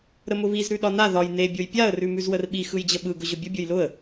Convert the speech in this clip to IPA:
ɾəmʊβiz ɾʉɗɒna ðɒj ne bʲojpʲaə̯ rʉmʉzwərɓi xɯjd͡ʑəɓɯ ɡʊʑʊbʲʊ bʲojlʊə̯

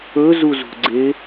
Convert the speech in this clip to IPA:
ɵzuzṳɡ͡ǀe

